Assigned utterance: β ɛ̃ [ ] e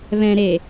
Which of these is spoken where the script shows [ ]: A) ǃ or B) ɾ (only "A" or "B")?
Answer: B